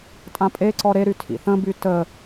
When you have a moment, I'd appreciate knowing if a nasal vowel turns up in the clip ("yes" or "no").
yes